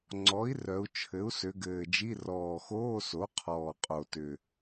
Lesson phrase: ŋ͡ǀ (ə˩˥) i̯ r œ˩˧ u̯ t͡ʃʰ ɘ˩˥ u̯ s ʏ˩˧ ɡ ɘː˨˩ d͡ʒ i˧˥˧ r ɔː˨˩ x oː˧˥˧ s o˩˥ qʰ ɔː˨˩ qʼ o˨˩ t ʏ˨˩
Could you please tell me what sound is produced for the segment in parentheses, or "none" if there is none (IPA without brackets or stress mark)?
ɔ˩˥